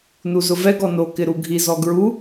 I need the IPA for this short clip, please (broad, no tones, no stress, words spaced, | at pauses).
nuzʊvɛɡ ɔno kɪɾuɡʱiz ɔɡɹu